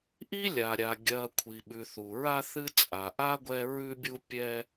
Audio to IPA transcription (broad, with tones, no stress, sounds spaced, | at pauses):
ʔ i˥ lʲ a˩ ɾʲ a˩ ɡʲ ɐ˨ kʷʰ i˩ ɓ ʉ˩ θ u˩ ɹ a˦ θ ɨ˥ t͡sʼ a˩ ʔ a˥ ɡʷ ɛ˦ ɹ ʉ˦ bʲ u˦ pʲ ɛ˦